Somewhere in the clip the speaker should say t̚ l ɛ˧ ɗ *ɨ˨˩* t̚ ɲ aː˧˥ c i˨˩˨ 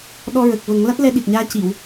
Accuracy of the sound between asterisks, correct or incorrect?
incorrect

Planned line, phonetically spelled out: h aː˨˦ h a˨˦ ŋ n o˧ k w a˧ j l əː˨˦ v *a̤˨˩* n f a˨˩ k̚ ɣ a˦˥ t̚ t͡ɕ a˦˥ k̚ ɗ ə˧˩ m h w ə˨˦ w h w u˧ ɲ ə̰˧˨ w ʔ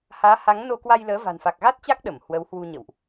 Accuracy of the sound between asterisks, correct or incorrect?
correct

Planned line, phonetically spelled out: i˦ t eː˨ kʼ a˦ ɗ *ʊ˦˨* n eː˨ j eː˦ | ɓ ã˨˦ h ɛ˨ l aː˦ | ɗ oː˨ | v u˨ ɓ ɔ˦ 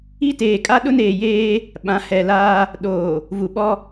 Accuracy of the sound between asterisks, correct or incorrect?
incorrect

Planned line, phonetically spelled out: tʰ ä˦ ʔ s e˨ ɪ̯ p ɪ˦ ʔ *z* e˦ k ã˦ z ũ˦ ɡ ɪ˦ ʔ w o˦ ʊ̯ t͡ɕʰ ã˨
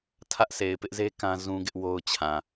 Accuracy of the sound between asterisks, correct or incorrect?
correct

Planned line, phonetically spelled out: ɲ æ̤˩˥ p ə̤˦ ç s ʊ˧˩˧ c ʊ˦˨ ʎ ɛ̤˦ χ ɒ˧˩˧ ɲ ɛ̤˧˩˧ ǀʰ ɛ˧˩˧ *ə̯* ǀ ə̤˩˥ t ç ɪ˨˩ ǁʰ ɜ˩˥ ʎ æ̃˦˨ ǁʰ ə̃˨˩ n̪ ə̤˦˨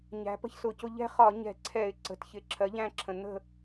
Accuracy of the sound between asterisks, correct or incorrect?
incorrect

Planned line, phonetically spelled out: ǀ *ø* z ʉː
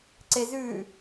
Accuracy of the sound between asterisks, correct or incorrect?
incorrect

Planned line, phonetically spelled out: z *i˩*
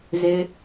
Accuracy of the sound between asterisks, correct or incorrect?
incorrect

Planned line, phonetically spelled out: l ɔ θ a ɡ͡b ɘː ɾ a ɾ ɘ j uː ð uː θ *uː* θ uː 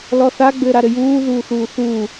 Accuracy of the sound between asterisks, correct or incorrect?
correct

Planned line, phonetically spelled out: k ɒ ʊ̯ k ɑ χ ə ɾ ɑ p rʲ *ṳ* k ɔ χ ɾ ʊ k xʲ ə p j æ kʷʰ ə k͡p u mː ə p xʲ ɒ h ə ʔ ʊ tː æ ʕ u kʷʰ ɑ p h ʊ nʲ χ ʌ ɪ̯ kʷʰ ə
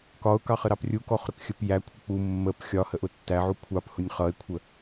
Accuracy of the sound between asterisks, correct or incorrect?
incorrect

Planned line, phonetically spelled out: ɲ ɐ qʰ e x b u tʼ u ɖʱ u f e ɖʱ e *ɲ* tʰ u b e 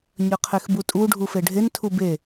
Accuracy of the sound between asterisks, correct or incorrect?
incorrect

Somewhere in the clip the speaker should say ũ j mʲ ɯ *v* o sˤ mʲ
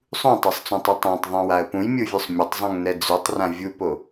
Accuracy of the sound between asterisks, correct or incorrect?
incorrect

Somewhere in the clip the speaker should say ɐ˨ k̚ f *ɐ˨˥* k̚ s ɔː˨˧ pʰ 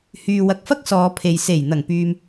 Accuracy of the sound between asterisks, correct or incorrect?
incorrect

